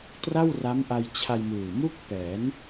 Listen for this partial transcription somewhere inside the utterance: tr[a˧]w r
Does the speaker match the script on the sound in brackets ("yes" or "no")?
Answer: no